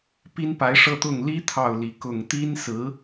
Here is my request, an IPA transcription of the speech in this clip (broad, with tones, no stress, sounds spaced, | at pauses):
p i˥ n p a˧˥ ɪ̯ ʂ ɤ˥˧ t̪ ʊ˥˩ ŋ l i˥ t̪ʰ ɑ˥˩ ʊ̯ l i˧˥ k ʊ˨˩ ŋ t̪ i˥ n s ɹ̩˧˥